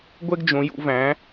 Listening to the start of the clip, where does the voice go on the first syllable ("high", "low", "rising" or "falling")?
high